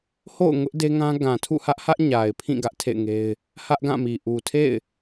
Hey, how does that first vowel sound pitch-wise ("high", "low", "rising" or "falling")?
falling